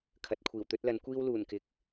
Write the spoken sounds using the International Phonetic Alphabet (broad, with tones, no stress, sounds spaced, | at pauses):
kʰ ɐ˨ t̚ kʷʰ iː˨˩ w t̪ ɵ˥ t̚ l ɐ˨˥ n kʷ iː˥ w l uː˨˩ n k ɪ˨˥ k̚